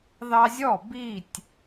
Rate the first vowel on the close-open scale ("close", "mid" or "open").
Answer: open